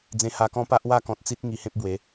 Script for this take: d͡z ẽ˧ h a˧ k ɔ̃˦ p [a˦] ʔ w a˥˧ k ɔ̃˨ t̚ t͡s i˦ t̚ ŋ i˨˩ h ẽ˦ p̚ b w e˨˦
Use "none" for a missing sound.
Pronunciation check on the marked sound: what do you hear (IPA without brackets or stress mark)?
a˦